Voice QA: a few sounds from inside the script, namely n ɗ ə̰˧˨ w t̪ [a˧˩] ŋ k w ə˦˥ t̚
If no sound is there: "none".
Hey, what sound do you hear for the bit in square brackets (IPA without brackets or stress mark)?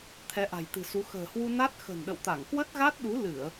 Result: a˧˩